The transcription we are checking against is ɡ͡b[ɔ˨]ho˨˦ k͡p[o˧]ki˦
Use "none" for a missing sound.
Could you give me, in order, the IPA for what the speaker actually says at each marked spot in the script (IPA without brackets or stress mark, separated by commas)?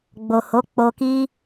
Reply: o˨, o˧